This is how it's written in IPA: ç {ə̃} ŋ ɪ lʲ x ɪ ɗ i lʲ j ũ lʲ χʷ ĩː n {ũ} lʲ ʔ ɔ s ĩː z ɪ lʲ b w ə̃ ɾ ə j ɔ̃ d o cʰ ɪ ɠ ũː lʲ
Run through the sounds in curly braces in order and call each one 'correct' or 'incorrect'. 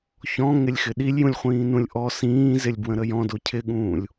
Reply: incorrect: ɔ̃, correct

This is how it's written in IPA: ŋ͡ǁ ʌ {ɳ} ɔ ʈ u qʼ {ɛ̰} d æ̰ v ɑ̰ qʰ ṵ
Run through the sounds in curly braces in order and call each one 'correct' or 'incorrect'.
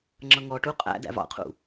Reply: incorrect: ŋ, incorrect: æ̰

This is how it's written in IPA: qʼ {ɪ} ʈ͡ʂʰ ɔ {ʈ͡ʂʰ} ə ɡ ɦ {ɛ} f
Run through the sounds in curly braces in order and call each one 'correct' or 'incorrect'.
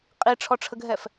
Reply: incorrect: i, correct, correct

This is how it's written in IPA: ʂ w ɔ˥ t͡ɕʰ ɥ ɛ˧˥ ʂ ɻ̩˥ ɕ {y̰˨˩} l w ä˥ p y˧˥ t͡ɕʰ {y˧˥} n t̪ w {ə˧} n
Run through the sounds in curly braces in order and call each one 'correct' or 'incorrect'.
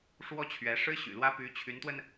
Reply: correct, correct, correct

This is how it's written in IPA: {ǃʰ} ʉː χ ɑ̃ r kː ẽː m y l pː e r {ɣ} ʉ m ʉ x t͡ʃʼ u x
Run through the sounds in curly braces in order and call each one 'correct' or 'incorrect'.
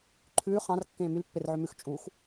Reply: correct, incorrect: ʕ

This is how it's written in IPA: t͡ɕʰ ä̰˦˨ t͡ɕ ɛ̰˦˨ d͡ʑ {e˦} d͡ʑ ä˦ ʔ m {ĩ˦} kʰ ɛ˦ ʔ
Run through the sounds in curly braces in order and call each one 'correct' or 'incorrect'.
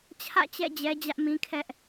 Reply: incorrect: ɛ˦, correct

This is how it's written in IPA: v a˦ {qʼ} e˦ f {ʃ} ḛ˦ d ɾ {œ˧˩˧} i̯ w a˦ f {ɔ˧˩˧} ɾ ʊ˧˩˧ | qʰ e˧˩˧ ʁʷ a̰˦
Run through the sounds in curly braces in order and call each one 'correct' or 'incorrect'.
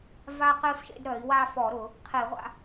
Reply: incorrect: q, correct, correct, correct

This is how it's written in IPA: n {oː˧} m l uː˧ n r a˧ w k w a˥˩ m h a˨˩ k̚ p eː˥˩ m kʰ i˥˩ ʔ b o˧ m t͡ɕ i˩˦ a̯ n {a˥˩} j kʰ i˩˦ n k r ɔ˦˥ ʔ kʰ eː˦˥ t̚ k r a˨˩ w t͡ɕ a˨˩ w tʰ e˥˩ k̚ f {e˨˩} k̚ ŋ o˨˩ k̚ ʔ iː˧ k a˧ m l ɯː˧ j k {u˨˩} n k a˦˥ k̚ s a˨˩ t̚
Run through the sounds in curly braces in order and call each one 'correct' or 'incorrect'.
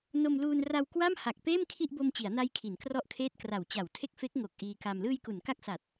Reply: incorrect: o˧, incorrect: a˦˥, incorrect: e˦˥, incorrect: u˩˦

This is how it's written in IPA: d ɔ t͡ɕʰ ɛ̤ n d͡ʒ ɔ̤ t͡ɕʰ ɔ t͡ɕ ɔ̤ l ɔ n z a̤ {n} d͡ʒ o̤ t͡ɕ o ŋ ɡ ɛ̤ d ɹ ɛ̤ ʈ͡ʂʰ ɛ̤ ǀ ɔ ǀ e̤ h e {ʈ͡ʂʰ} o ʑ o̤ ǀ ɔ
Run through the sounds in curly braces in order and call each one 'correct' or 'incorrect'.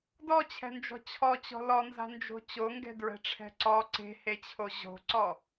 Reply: correct, incorrect: t͡ɕʰ

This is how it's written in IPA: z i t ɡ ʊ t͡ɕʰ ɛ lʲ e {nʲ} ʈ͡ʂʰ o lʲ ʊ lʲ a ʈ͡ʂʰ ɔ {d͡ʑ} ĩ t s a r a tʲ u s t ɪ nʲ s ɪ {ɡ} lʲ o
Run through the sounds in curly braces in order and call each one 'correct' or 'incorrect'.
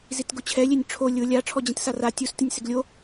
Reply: correct, correct, correct

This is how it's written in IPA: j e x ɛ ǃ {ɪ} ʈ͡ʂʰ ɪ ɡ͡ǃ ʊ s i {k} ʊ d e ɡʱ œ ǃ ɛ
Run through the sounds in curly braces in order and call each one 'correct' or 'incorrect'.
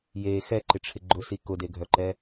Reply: correct, correct

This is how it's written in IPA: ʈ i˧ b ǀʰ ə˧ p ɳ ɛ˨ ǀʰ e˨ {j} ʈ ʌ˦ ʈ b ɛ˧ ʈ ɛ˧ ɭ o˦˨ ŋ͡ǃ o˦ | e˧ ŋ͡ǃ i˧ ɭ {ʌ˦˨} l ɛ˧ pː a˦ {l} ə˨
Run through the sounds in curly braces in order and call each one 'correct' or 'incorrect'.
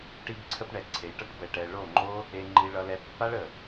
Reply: correct, incorrect: ʌ˧, incorrect: ɭ

